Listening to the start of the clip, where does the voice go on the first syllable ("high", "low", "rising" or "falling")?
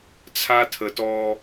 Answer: high